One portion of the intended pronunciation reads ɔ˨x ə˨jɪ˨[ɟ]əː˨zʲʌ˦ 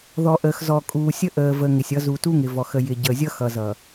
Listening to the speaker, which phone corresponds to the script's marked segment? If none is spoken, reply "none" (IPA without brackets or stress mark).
ɟ